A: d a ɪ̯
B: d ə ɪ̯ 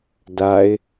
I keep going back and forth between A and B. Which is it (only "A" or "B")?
A